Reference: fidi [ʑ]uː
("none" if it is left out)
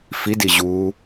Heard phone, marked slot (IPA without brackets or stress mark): ʑ